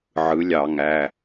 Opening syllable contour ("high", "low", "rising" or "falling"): rising